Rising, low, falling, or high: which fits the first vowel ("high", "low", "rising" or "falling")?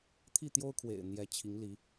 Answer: falling